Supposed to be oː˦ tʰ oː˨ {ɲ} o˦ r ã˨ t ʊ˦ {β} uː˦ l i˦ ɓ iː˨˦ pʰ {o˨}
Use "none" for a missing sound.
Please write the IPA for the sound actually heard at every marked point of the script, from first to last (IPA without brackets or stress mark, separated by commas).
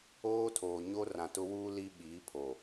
ɲ, w, o˨